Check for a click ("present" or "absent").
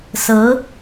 absent